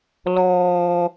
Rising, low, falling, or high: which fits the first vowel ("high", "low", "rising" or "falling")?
low